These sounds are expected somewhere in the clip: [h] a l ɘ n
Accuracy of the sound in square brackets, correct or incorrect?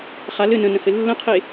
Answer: incorrect